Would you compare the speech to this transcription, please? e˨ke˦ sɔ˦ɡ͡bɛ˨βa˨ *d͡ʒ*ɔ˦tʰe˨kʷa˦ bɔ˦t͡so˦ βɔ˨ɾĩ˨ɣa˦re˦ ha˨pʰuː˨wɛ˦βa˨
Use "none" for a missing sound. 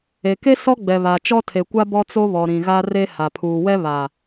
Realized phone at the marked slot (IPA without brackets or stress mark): t͡ʃ